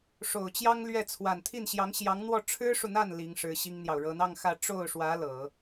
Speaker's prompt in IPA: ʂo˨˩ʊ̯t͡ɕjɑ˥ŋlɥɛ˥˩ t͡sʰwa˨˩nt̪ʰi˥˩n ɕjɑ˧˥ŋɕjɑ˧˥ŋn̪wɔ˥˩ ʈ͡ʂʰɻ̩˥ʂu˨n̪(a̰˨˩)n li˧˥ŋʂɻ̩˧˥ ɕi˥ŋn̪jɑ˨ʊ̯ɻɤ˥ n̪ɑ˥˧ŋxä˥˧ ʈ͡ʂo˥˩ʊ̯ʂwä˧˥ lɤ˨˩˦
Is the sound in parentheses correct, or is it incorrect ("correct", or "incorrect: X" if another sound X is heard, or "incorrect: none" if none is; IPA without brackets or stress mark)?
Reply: incorrect: a˥˩